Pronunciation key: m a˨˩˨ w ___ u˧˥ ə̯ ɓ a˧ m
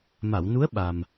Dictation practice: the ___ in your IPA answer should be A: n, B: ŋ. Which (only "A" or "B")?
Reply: A